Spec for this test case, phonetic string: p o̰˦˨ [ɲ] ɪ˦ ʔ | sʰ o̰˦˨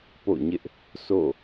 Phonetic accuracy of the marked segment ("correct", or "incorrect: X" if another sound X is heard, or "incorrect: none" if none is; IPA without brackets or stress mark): correct